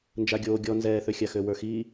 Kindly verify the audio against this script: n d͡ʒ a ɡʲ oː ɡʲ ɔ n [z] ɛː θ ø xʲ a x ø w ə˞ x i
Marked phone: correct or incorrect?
correct